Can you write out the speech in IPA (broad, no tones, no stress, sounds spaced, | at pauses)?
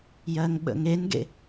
j ɜ ŋ ɓ ə̰ ŋ e n ɡ ḛ